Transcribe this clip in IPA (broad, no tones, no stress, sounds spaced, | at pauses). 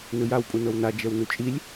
n ɯ j a w pʼ u n ɤ w n a d͡ʒ ɛ w n u t͡ʃʼ i lʲ